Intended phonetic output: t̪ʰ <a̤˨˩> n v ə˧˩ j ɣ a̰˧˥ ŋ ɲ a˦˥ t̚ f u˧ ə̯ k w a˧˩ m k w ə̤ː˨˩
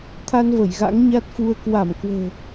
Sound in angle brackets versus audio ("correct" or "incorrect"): incorrect